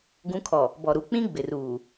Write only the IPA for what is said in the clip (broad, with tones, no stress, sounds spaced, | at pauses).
ɡ ũ˨˦ kʰ ɔ˨ | b ɔ˨ ɾ u˨ k͡p ĩ˦ ɡ͡b ɪ˨ r uː˨